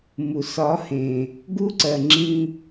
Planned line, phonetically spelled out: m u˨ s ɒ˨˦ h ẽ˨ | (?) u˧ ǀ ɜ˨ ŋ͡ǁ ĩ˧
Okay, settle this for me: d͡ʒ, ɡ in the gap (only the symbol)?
ɡ